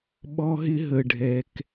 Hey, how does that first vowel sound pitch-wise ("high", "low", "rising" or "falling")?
high